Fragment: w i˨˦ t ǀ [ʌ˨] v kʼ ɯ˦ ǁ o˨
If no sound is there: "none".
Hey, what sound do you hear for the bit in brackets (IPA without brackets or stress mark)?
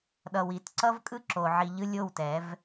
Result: ʌ˦